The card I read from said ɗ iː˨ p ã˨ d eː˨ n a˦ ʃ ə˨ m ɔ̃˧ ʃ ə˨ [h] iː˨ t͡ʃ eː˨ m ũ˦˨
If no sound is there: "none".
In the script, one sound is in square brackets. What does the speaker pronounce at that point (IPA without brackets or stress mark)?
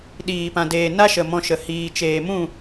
h